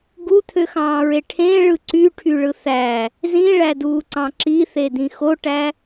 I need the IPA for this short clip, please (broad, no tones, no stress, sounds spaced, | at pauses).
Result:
ɡ u t̪ʰ ø x ɑ̃ː ɹ e ʈʰ ẽ ɭ ɯ ǀ y ʈʰ y ɭ ɯ θ æ | z ĩ ɭ æ d uː ǀ ɑ̃ ǁ i θ e d̪ ĩ x o ʈ æ